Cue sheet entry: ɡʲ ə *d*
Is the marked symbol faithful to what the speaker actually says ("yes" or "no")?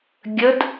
yes